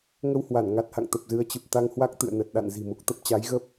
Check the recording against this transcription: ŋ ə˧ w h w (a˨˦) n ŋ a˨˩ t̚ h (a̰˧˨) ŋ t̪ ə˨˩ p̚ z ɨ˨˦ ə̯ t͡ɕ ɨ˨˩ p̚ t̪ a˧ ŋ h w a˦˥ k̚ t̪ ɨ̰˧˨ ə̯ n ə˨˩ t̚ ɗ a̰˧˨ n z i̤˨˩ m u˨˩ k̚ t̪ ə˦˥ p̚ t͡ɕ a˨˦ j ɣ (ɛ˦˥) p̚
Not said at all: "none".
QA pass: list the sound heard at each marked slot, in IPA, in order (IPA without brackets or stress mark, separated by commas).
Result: a˧˩, a̰˧˨, ə˦˥